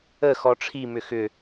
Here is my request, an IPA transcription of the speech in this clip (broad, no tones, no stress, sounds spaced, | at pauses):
ə x ɔ ʈ͡ʂʰ i m ʏ x ʏ